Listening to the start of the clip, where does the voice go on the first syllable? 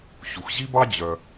low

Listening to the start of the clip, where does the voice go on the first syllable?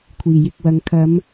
low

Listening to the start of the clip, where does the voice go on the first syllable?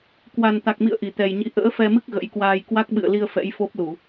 low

